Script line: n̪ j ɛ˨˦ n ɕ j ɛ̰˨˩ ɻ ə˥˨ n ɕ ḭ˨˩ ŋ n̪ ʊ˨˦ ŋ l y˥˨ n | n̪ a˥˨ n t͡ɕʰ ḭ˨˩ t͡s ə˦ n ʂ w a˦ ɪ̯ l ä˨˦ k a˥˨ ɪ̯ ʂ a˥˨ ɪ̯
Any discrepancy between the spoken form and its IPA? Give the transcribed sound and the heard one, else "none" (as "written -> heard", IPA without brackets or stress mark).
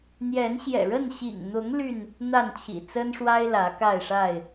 none